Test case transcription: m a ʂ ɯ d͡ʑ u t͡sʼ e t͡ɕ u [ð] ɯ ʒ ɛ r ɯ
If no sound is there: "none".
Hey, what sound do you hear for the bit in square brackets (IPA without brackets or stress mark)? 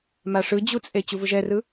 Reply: v